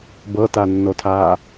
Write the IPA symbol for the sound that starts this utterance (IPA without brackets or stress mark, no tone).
b